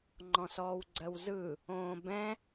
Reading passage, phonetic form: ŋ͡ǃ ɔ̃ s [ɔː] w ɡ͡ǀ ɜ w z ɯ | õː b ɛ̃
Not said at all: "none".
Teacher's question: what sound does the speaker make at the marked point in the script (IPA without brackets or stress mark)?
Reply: ɔː